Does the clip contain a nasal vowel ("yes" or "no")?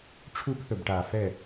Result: no